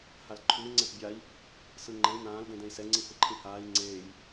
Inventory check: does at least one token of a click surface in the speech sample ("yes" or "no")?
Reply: yes